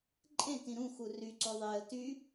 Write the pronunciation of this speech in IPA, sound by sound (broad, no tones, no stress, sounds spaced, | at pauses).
ǃʼ ẽ t ĩ ɾ ũ x u r y ǀ o ðˤ e ə̯ t y